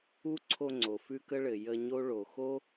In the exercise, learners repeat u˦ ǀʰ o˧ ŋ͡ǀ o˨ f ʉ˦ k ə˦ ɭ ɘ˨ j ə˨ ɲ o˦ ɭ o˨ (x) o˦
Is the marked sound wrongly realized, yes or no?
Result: no